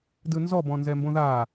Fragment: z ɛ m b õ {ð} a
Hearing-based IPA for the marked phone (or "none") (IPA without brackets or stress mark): ð